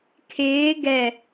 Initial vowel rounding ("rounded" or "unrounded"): unrounded